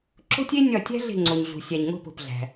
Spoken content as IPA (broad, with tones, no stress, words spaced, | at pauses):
ǁo̤˥tʲe˥ nʲɒ˦˨tʲæ̤˥ ɮe̤˦˨ŋ͡ǀo˨ɲɮṳ˨sʲæ˨ɲ ŋo̤˦˨po̤˨pɮæ̤˨